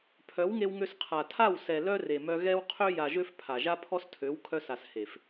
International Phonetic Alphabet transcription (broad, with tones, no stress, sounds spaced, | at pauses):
pʰ œ˨˦ w ŋ e˧ w ŋ ø˧ s qʰ a˨ tʰ a˦˨ w s ɛ˨ l œ˦ r e˨ m œ˧ ɣ ɛ˦ w qʰ ø˦ j a˨ ʒ ø˧ f pʰ a˨ ʒ a˦ pʰ ɔ˦ s tʰ ø˨˦ w kʰ œ˧ s a˨ s h e˨ f